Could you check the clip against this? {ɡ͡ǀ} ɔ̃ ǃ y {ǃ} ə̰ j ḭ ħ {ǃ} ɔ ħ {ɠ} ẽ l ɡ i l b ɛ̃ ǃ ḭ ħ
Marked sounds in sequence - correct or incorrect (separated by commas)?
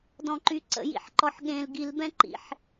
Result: incorrect, incorrect, correct, correct